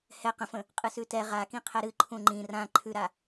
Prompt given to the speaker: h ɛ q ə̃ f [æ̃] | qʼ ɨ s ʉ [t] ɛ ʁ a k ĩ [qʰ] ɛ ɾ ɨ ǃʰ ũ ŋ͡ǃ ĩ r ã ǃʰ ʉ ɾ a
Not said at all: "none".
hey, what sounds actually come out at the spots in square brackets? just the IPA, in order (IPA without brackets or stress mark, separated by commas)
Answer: ə̃, t, qʰ